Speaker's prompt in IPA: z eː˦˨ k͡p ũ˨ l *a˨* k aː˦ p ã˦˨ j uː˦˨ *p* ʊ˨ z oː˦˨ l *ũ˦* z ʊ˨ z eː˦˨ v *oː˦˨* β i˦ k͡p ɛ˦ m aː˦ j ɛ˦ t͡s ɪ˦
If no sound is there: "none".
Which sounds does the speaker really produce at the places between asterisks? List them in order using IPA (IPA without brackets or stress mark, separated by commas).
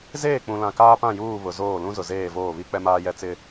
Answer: ã˨, β, ũ˦, oː˦˨